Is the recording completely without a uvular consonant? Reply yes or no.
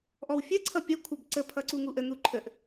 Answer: yes